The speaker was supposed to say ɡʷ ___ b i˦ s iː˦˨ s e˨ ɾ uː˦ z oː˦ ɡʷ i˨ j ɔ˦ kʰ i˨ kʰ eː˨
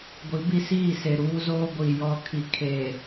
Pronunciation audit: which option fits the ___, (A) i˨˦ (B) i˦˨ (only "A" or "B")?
A